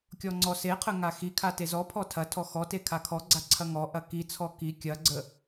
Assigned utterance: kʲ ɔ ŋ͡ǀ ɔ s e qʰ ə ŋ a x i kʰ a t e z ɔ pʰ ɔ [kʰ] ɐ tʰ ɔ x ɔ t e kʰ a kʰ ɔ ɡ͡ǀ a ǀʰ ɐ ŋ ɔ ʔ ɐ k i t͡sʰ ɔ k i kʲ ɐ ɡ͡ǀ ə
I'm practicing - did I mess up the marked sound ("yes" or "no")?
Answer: yes